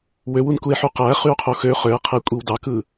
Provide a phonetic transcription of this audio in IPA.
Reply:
w ø w u n k u e̯ ħ u q æ χ y o̯ qʰ o x ø χ ø e̯ qʰ e kʷʼ i w d ɑ k ɯ

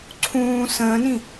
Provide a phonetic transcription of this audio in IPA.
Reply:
ǀʰ ũː s ə̃ː n ĩ

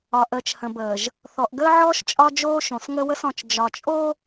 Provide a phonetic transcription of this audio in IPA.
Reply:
ɒ˨ ʔ əː˨ t͡ʃ h ə̃˨ b əː˨ ʒ | θ ɔ˨ ʔ ɡ əː˦ ʕ ɔː˦ ʃ t͡ʃʼ ɒ˦ d͡ʒ oː˦ ʃ õ˨ s ŋ ə˦ w ə˦ s ɔ̃˨ t͡ʃ d͡ʒ ɒ˨ t͡ʃʼ o˦

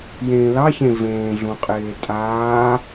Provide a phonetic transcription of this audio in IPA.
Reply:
j ẽː l ɑ ç ẽ v ẽː ɮ ũ qʼ eː tʼ aː

